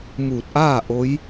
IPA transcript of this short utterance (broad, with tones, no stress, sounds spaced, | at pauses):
m uː˧˩ t̚ ʔ aː˥˨ ʔ o˧˥ j